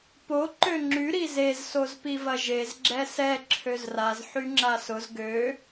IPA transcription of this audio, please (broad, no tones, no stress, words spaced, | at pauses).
po ǃøŋ͡ǁy ɾizez sozpivɐʒez ɡ͡ǁɛsɛ ǁʰøzraz ħyŋ͡ǁasʊz ɡø